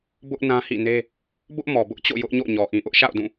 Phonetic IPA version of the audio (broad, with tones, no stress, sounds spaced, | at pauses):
b ʊ˦ ʔ n ã˦ h ḭ˦˨ n e˦ | b ʊ˦ ʔ m ɔ˨ b ʊ˦ ʔ t͡ɕ o̰˦˨ j ʊ˦ ʔ ɲ o̰˦˨ ɲ ɔ˨ ʔ ĩ˨ ʔ ʊ˦ ʔ ʃ a̰˦˨ ʊ̯ d ũ˦˨